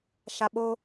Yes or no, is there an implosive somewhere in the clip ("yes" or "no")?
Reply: yes